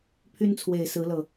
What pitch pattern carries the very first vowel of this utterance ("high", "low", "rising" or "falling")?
high